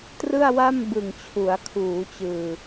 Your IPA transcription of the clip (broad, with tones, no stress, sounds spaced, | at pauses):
t r ɯ˥˩ a̯ w a˥˩ m b ɯ˨˩ ŋ t͡ɕʰ u˩˦ a̯ kʰ uː˩˦ t͡ɕ ɯː˨˩